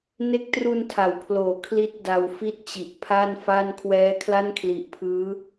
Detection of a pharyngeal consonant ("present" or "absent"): absent